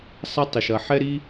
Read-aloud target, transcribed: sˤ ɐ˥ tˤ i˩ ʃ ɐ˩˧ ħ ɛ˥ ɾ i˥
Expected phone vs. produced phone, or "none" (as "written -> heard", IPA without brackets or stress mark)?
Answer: none